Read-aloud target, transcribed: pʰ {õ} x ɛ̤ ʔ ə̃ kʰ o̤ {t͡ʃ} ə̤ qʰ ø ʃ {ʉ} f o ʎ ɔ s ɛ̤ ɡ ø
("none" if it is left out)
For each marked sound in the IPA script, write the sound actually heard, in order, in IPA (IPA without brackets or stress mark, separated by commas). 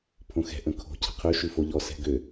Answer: õ, cʰ, ʉ